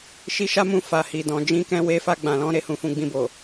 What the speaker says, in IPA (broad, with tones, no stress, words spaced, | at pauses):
ʃi˧ʃa˦mũ˧ fa˨hi˨dɔ̃˨ d͡ʒĩ˧kɛ̃˧ we˧fa˧ɡ͡bã˨lɔ̃˨˦ ɾe˦˨hũ˧fũ˧ ɡ͡bĩ˧bo˨